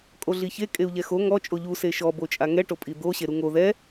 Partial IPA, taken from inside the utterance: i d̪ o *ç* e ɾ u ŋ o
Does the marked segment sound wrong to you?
yes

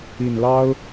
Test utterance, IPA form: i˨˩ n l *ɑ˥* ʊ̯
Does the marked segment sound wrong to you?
no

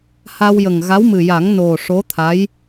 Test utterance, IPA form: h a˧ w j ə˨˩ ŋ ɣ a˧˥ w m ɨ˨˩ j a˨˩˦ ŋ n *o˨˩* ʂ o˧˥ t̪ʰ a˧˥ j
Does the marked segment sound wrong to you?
no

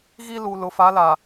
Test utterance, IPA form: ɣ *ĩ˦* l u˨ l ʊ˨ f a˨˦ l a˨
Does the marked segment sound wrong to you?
yes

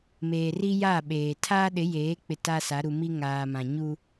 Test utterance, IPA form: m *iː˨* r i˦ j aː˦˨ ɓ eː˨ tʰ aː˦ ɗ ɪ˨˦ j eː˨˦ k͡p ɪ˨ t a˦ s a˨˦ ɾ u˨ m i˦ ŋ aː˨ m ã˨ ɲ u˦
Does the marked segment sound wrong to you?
yes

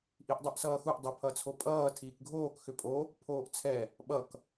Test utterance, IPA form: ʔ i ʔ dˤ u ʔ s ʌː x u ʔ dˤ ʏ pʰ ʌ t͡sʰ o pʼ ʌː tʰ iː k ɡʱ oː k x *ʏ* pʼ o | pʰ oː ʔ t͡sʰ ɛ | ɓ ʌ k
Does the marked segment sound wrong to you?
no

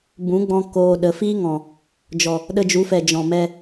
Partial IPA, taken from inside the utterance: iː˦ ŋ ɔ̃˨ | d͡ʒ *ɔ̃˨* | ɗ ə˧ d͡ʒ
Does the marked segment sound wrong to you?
yes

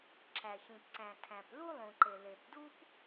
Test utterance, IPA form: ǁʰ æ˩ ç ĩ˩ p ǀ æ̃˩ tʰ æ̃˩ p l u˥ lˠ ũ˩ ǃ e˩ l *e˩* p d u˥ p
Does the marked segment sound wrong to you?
no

